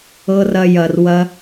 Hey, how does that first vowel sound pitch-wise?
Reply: high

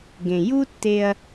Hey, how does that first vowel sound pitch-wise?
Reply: low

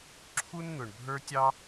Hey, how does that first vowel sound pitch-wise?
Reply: high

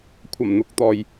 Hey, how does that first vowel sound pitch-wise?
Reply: low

